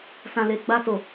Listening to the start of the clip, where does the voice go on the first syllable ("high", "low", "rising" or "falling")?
low